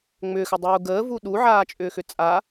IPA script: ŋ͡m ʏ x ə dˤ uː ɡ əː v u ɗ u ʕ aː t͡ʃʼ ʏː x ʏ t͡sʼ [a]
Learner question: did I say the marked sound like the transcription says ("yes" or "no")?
yes